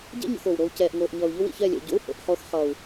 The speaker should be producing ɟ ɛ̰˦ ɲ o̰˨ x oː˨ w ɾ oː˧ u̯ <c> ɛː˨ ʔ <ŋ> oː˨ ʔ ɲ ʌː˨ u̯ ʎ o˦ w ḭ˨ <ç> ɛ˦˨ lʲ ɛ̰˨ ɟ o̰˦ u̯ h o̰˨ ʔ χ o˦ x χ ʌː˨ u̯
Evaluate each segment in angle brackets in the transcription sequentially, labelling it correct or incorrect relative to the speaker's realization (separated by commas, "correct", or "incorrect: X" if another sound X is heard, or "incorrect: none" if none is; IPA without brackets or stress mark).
correct, correct, correct